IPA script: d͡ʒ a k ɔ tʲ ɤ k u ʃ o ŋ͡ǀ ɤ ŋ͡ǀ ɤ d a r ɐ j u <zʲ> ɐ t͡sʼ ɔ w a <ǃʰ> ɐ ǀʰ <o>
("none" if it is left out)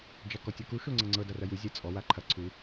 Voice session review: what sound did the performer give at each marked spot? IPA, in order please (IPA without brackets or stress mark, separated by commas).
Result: zʲ, ǃʰ, u